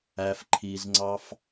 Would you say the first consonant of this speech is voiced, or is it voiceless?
voiceless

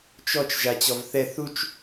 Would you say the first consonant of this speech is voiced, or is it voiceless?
voiceless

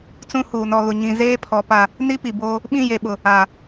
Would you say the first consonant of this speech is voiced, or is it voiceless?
voiceless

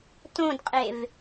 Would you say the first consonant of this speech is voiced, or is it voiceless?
voiceless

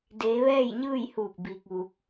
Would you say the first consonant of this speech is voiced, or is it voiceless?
voiced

